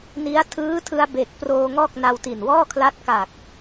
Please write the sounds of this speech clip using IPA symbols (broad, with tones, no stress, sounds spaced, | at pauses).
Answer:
n i˦˥ a̯ tʰ ɯː˦˥ tʰ ɯ˧ a̯ b e˨˩ k̚ p r oː˧ ŋ ɔː˥˩ k̚ n a˧ w t i˨˩ n w ɔː˥˩ kʰ l a˦˥ t̚ k a˨˩ k̚